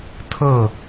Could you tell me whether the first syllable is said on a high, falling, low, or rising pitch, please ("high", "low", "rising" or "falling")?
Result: falling